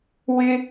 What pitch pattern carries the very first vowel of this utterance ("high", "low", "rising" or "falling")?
high